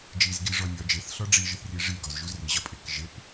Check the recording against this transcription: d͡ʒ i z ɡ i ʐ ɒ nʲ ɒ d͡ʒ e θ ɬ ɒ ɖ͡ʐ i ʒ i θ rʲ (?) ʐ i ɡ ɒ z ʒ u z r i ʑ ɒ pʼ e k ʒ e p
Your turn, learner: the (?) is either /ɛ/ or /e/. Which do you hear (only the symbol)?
e